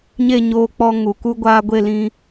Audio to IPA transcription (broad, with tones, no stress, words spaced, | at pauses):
ɲe˦˨ɲoː˧k͡pɔ˧ŋu˨ ku˧ɡʷaː˧ɡʷe˦˨lĩ˧